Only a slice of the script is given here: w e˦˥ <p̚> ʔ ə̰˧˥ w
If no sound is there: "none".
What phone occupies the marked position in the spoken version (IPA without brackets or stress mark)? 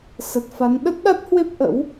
p̚